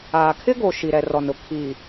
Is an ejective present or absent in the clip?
absent